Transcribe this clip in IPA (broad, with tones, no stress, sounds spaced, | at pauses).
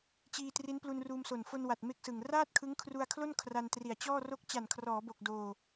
t͡ɕ iː˧ t r i˦˥ n p l u˧ n r uː˧ m s o˨˩ n f o˧ n w a˨˩ t̚ m e˦˥ k̚ s ɯ˨˩ ŋ r aː˥˩ t̚ kʰ ɯ˦˥ ŋ kʰ r u˧ a̯ kʰ l o˥˩ n kʰ r a˧ n t r i˨˩ a̯ t͡ɕ ɔː˥˩ r o˥˩ k̚ t͡ɕ a˨˩ n kʰ r ɔː˩˦ b o˨˩ k̚ d oː˧